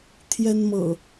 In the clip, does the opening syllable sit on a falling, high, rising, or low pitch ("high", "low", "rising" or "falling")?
high